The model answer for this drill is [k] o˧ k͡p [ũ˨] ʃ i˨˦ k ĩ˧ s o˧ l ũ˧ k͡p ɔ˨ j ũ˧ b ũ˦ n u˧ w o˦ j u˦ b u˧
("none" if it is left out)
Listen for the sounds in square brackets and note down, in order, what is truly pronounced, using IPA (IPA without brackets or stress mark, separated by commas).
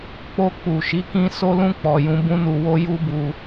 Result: k͡p, u˨